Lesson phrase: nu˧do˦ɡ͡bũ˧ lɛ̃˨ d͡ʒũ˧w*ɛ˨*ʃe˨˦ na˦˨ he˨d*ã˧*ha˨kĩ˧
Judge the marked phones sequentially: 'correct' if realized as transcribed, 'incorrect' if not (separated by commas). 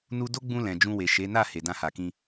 incorrect, correct